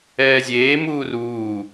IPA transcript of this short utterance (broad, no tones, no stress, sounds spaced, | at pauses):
ɛː zʲ eː m uː r uː